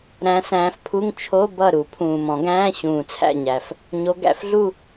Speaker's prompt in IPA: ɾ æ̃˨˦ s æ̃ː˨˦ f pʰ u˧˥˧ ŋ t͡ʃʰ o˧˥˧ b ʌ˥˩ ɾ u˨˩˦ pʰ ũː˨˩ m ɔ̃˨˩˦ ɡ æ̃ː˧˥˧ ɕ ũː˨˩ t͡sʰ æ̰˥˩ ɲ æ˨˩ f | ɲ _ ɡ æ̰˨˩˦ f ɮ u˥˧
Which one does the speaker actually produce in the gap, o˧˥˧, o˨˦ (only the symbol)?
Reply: o˨˦